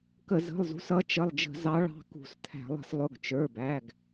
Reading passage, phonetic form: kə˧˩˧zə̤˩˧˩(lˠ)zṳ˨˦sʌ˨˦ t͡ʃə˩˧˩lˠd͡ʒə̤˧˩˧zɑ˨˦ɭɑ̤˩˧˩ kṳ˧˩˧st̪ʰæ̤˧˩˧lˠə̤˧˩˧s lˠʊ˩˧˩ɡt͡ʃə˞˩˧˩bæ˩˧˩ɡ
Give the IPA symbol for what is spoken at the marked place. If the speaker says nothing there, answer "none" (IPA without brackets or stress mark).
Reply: lˠ